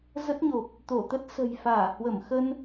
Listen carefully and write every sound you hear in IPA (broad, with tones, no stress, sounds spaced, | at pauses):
z ə˦˥ t̚ ɲ o˨˩ p̚ | t̪ o˧˩ t̪ ə˦˥ t̚ s ə̤˨˩ j f aː˧˩ h w ə˧˩ m x ə˧ n